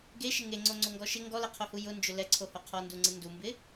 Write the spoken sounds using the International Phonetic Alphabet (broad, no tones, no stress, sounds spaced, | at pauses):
ɡ e ʃ ɪ ŋ e ŋ͡ǀ o ŋ͡ǀ o ŋ ɡ ɔ ʃ ɪ ŋ ɡ ɔ l ɛ qʰ o h u j ʊ n d͡ʒ ʊ l ɛ ǀʰ o h o qʰ ɔ n d u ŋ͡ǀ ɪ n d u m b ɪ